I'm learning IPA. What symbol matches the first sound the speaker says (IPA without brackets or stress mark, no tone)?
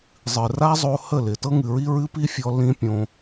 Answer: zˤ